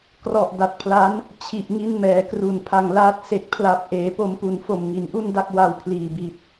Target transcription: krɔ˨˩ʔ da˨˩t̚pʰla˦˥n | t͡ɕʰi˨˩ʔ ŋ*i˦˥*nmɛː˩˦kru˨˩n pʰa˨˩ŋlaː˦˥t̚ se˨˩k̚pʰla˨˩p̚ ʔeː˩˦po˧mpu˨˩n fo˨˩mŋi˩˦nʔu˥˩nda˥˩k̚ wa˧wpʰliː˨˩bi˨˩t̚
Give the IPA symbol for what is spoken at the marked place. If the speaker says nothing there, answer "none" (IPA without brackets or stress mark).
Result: i˦˥